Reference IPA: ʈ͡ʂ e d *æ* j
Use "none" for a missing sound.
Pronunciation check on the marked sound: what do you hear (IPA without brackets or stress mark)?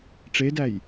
æ